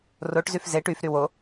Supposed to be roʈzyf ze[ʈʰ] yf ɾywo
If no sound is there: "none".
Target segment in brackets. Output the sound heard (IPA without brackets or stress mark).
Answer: ʈ